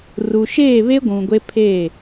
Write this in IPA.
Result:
r u˨ ʃ eː˦˨ β e˦ ɡʷ ũ˨ ɡʷ e˦ pʰ e˦˨

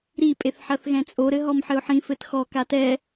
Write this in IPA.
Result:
ɾ i pʼ e θ ħ ɐ θ ɣ ɛ̃ t͡sʼ o ɾ ɘ ɦ ɔ m ħ ɘ ʊ̯ ħ ĩ f ɘ t x ɔ k a t ɛ

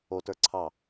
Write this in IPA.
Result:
o t ə˞ ǀʰ ɑ

